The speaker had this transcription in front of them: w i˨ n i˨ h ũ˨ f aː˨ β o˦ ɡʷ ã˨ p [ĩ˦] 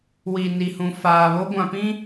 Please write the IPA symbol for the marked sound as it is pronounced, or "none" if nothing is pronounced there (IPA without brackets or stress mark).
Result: ĩ˦